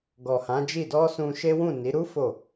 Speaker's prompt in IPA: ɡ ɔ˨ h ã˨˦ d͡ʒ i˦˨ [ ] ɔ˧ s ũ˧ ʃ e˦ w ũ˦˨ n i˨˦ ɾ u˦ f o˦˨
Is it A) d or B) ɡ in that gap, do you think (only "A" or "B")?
A